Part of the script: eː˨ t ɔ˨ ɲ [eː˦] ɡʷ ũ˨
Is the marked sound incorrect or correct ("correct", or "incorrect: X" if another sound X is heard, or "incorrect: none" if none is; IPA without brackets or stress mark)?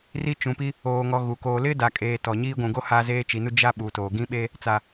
incorrect: iː˦